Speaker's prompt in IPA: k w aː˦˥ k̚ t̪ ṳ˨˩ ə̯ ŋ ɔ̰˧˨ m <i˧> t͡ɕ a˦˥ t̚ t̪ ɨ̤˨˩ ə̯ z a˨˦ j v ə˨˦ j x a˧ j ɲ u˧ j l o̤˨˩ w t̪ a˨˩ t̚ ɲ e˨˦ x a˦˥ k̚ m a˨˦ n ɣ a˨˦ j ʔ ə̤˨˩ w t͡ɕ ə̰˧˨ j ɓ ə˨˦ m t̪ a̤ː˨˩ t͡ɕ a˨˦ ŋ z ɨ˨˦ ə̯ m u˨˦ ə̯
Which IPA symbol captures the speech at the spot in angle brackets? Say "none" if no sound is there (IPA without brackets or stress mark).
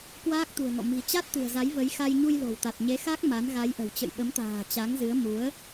i̤˨˩